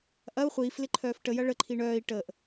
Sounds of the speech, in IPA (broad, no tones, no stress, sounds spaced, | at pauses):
ʔ ɐ u̯ χʷ iː f l ɪ ǃʰ œː f ʈ ə j ɐ ɭ ə ǃʰ i ɳ œː i̯ ʈ əː ʔ